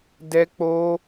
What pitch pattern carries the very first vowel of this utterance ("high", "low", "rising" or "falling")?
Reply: high